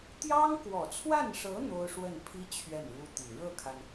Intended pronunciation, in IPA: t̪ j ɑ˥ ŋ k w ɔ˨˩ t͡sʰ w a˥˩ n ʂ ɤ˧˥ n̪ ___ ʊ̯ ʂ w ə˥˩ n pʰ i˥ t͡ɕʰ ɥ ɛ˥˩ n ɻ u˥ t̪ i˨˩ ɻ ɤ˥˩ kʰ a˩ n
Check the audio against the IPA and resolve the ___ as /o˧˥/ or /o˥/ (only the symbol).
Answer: o˥